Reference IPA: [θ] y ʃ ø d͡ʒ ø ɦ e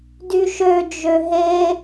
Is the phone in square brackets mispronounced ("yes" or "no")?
yes